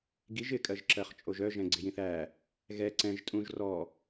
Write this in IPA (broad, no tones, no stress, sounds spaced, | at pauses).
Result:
ɡ i ʒ ɪ kʼ ɜ ʒ ǁ ɜ χ t͡ʃʼ o ʒ œ ʒ ɛ̃ ɡ͡ǀ ɪ j ĩ θ æ | ɣ ɛ ǀ ɛ̃ ʒ tʼ ũ ʒ r ɔ